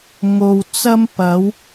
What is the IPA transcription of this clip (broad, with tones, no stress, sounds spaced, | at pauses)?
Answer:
ŋ o˨ w t͡s ɐ˧ m p ɐ˨˧ w